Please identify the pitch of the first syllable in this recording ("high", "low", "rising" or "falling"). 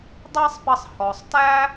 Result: high